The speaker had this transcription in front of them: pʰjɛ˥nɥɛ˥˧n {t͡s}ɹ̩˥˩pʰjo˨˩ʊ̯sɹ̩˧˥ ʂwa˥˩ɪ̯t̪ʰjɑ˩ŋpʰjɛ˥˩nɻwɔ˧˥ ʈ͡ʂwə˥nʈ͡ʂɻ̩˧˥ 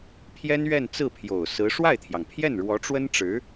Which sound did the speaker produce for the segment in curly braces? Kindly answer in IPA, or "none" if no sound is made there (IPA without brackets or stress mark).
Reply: t͡s